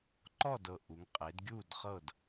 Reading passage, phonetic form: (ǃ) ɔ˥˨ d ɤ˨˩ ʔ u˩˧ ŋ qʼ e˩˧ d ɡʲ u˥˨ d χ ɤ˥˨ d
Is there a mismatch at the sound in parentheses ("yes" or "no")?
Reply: no